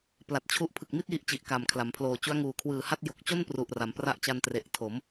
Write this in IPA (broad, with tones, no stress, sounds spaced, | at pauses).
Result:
p l a˨˩ t̚ t͡ɕʰ u˦˥ ʔ pʰ ɯ˨˩ k̚ m i˥˩ t̚ j i˥˩ ʔ t͡ɕ i˨˩ ʔ k a˨˩ m kʰ l a˩˦ m pʰ l oː˨˩ t͡ɕ u˦˥ a̯ ŋ uː˨˩ kʰ w ɯː˨˩ h a˥˩ t̚ j o˨˩ k̚ t͡ɕ o˥˩ n p r u˨˩ ʔ r a˩˦ m p r a˦˥ ʔ t͡ɕ a˧ n t r e˨˩ ʔ tʰ o˩˦ m